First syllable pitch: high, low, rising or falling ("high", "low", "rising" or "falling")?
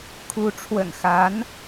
rising